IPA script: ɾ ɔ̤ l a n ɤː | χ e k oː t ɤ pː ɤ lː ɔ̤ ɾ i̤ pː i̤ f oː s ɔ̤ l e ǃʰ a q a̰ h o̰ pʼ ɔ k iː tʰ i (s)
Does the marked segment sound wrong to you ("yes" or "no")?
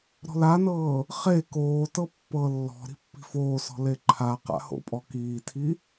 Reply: yes